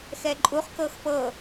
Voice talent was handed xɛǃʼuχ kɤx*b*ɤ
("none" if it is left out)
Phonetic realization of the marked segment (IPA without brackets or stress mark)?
p